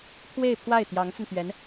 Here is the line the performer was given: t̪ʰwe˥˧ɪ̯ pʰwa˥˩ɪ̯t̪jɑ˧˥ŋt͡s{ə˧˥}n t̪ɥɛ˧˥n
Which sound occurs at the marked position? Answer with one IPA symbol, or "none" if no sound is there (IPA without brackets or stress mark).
ə˧